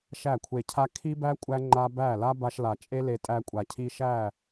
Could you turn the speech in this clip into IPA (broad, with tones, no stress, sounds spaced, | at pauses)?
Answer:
ʃ æ˦˨ kʷʰ e˧ cʰ a˦ kʰ i˦ b æ˦ kʷʼ æ˦ ŋ͡ǃ a˦ b æ˦˨ l a˦ b a˧ ʃ l a˨ t͡ʃʼ e˦ l e˧ tʼ æ˧ kʷʼ a˨ cʰ i˧ ʃ æ˦˨